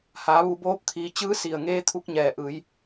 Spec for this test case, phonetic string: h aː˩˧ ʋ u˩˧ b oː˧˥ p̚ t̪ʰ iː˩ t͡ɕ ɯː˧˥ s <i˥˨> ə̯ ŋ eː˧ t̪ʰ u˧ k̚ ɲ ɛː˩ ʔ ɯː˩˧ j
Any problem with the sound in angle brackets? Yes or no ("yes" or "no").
yes